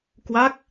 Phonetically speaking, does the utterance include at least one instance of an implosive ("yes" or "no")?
no